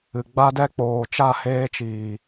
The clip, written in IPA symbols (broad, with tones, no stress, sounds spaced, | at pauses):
ɨ˨ ɡ͡b a˦ d ɛ˦ k͡p oː˨ t͡ʃ a˦˨ h eː˧ t͡ʃ iː˨